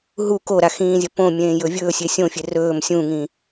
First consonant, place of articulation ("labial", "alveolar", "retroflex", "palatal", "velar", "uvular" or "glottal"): glottal